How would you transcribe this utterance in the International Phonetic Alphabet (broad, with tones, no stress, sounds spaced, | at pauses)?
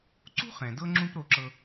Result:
ǀ ṳ˥ χ ɛ̃˩ d ɤ˥ ŋ͡ǁ ũ˥ p ɾ o˧ ǁ ɤ˧